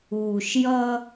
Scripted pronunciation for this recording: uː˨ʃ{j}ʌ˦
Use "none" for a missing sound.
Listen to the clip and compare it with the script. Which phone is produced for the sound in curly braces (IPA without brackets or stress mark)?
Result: j